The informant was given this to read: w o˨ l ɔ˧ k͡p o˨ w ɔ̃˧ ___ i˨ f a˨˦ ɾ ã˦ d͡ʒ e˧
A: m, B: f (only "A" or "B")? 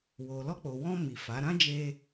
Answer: A